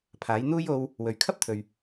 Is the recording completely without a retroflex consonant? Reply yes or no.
yes